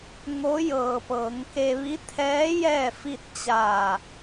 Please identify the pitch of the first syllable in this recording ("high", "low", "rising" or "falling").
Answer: rising